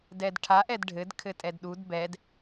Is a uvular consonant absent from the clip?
yes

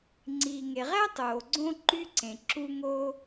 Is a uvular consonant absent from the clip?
no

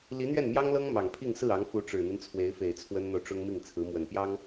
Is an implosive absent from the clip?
yes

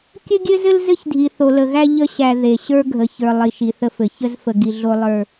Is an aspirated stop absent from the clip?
yes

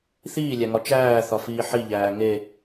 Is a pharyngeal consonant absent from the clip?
no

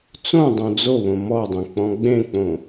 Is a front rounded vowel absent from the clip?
yes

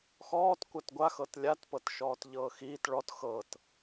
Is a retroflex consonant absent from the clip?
no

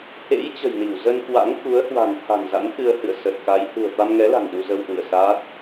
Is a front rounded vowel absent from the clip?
yes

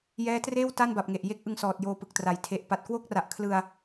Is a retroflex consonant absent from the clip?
yes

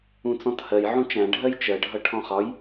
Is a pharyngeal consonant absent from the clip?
no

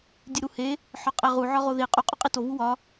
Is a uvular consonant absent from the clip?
no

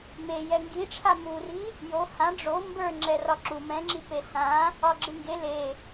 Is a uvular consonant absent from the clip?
yes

